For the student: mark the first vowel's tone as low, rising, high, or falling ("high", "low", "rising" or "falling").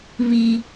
high